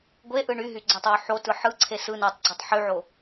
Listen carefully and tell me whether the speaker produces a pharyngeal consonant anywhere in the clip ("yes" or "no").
yes